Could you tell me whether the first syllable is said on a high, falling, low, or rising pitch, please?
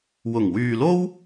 low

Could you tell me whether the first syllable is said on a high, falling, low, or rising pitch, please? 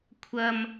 low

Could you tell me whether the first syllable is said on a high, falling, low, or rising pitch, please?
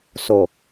low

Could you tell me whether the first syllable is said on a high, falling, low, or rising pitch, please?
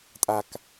low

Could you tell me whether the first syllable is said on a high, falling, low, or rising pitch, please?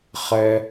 low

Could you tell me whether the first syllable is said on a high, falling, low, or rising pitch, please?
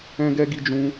high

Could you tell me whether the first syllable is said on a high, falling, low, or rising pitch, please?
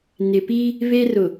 low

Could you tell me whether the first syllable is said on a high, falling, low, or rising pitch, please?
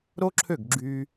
high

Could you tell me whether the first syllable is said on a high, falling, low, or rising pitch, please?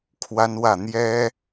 high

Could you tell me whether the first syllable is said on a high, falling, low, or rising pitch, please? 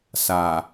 low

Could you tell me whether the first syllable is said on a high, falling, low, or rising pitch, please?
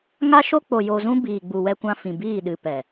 high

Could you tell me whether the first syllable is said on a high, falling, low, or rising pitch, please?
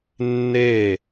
falling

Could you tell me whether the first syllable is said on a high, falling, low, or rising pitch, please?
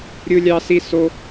high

